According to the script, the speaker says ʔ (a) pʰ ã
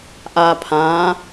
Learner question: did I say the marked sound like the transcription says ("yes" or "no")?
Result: yes